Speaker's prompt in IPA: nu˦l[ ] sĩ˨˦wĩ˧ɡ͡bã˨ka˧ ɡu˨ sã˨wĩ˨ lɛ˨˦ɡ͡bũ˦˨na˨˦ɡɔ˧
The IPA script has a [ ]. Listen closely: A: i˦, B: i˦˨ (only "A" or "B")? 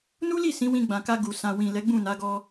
B